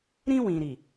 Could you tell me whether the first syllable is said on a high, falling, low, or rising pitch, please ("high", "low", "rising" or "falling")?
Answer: high